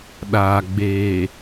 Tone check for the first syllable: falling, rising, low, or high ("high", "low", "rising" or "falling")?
low